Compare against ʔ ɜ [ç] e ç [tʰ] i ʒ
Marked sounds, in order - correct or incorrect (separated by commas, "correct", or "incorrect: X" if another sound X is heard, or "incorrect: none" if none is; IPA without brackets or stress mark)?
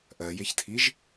incorrect: j, correct